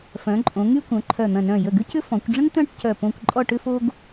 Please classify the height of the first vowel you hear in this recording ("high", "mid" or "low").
mid